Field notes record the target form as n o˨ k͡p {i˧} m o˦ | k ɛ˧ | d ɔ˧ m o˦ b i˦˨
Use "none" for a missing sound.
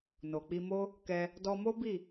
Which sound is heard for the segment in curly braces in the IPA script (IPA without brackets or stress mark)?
i˧